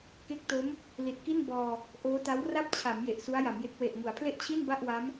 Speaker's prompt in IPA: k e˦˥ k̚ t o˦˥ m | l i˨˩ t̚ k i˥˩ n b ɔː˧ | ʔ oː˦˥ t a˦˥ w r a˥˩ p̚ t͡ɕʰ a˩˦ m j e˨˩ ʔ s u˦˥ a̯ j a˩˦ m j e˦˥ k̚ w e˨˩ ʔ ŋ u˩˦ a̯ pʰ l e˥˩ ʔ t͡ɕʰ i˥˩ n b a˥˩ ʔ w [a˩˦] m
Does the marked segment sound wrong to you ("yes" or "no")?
yes